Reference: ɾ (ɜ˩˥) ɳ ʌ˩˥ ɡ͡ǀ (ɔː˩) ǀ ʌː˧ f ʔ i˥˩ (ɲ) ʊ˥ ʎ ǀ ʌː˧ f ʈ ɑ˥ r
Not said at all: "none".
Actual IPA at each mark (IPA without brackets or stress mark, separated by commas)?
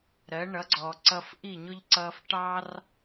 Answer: ɜ˩˥, ɔː˩, ɲ